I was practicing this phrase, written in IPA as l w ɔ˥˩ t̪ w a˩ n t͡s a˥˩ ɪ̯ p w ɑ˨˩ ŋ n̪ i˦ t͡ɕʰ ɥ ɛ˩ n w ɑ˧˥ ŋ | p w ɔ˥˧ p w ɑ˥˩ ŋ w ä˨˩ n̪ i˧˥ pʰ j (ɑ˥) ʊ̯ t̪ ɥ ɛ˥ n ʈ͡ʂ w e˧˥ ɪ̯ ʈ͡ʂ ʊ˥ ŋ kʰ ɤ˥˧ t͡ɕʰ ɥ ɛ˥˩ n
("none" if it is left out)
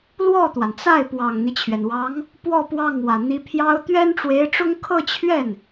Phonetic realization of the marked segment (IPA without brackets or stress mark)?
ɑ˥